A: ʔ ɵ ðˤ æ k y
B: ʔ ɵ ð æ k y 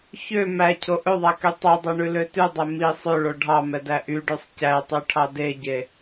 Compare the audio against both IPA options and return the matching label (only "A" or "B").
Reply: A